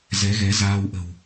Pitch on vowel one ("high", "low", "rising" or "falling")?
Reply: rising